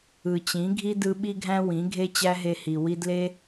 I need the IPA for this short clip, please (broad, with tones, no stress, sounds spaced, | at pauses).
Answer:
ɯ˨ t͡ɕ ĩ˨˦ ɡʱ i˦ d ɯ˧ ɓ i˦ ɡʱ æ̃˦ w ĩ˨˦ ɡʱ e˦ t͡ɕ æ˦ ɦ e˧ h i˨ w i˧ d l e˦